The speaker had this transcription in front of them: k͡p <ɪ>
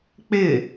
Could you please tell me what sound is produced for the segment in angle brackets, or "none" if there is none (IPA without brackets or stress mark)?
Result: ɪ